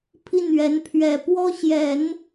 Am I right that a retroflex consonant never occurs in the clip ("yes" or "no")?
yes